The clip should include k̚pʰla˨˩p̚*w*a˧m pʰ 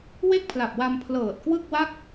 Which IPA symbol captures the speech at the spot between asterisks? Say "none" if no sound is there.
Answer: w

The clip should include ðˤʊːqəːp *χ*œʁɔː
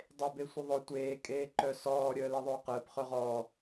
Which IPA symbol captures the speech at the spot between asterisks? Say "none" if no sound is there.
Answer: χ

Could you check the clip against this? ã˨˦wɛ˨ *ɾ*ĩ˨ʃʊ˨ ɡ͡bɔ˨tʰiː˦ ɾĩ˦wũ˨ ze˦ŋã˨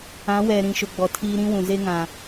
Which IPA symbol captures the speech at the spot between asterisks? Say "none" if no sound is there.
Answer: ɾ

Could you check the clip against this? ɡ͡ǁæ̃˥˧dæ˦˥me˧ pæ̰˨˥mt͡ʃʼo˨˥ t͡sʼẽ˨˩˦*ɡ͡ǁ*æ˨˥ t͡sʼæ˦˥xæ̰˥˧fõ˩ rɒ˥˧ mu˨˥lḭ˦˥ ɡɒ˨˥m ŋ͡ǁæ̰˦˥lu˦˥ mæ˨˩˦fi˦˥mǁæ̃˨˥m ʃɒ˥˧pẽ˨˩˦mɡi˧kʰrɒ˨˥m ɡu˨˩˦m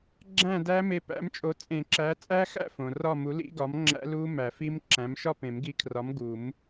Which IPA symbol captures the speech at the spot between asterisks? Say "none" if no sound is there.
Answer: ǁ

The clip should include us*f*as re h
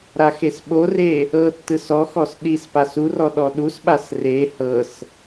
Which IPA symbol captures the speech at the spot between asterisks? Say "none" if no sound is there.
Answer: ɓ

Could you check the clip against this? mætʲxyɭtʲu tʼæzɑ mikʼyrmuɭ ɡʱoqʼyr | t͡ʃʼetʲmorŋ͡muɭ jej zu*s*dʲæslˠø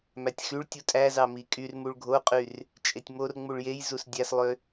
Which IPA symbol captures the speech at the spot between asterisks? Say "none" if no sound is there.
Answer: s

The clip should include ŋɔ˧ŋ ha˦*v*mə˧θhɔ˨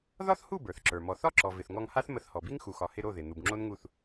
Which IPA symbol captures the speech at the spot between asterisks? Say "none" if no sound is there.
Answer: θ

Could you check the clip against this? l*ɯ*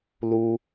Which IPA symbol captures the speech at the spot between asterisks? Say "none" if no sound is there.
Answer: u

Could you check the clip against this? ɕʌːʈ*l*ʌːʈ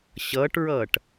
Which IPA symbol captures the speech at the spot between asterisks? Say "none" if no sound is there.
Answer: ɹ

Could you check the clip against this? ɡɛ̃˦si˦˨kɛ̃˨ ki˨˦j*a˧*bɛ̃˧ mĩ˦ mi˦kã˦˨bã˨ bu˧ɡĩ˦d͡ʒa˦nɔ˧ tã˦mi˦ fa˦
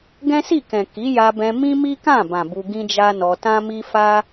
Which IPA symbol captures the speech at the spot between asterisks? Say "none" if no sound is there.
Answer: a˧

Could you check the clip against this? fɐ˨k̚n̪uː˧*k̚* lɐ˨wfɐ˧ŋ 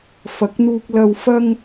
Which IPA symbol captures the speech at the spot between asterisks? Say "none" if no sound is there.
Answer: k̚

